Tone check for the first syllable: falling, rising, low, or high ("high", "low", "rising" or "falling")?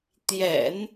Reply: low